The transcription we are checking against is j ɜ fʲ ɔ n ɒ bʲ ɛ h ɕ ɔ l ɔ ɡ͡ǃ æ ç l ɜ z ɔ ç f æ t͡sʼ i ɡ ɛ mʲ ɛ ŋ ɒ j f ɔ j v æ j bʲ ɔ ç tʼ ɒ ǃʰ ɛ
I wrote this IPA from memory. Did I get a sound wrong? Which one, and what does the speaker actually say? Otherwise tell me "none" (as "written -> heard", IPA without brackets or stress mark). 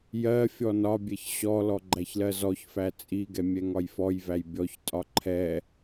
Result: h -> ç